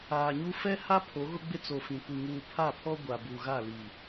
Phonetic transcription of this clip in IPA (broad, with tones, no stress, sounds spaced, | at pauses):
aː˨ ɲ u˦ f ɛ˦ h a˦ pʰ o˨˦ ɣ ʊ˦ ɡ͡b ɪ˦ t͡s o˨ f ĩ˨ kʷ i˨ ŋ uː˨ pʰ a˦˨ pʰ ɔ˦ ɡʷ a˨ b u˨ ɣ a˦˨ l i˨